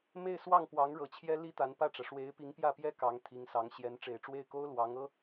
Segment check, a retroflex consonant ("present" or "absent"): present